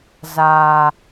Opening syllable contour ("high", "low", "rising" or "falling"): low